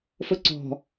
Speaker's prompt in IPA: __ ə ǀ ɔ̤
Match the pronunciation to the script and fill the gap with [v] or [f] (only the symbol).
f